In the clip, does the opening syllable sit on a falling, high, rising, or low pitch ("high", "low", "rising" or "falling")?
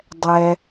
low